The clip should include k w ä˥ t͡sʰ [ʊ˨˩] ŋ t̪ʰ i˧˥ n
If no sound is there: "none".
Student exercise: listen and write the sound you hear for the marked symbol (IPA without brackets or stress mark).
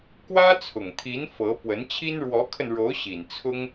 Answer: ʊ˨˩